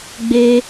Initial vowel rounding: unrounded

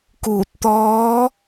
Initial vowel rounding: rounded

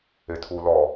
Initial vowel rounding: unrounded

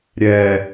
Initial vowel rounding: unrounded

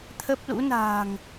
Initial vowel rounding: unrounded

